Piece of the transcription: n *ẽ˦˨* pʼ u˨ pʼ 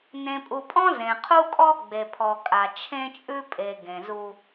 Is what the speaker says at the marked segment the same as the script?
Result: no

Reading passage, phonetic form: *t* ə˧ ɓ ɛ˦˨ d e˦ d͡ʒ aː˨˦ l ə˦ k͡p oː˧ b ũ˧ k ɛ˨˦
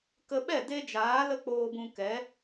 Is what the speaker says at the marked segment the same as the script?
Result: no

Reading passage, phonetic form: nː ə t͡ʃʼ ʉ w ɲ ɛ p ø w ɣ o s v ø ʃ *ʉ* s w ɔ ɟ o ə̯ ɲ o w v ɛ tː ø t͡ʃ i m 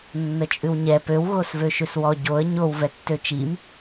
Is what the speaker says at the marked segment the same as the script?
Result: yes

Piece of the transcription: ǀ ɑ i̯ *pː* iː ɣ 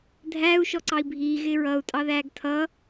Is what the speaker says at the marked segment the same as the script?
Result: no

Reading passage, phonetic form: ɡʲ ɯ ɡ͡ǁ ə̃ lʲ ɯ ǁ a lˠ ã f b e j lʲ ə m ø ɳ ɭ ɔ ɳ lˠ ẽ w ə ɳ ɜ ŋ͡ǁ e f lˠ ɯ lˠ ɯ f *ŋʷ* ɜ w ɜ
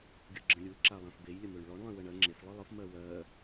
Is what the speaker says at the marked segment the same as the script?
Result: no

